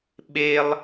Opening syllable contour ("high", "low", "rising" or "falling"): high